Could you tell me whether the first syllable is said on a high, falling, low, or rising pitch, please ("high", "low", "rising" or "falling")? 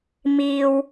low